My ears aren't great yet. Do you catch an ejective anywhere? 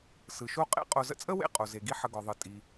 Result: yes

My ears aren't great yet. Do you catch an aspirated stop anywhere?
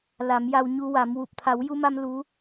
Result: yes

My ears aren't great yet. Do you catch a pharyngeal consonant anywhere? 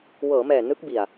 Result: no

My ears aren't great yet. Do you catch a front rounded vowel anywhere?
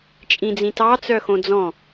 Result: yes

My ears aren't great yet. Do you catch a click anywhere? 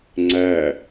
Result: yes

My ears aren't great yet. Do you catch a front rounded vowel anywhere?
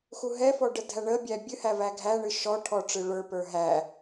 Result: no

